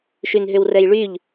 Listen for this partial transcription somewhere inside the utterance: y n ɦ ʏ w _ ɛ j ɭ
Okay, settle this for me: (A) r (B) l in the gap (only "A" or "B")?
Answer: A